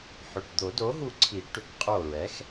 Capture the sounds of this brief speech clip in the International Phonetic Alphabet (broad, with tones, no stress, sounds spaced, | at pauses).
ħ ʏ˩˧˩ ʈ d̪ o˨˩˦ d o˩˥ ɦ u˧˩ ǀʰ i˨˩˦ ʈ ʏ˩˥ k qʼ o˧˩ ɹ ɛ˩˥ x